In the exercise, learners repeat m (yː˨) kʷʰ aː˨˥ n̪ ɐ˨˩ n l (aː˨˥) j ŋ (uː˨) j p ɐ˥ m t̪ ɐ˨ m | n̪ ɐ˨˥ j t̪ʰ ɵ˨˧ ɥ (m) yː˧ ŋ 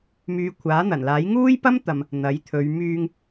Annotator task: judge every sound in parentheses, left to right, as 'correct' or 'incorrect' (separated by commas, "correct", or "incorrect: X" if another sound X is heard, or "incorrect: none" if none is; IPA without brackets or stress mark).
incorrect: yː˨˧, correct, incorrect: uː˥, correct